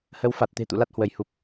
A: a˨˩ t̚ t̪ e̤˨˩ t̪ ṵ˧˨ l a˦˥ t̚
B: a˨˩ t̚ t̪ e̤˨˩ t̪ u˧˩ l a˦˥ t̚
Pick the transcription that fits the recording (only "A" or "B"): A